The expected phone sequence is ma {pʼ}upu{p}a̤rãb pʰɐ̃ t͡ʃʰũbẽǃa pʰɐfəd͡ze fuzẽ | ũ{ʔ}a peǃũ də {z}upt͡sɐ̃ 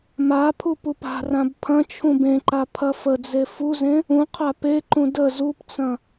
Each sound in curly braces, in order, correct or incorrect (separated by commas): incorrect, correct, incorrect, correct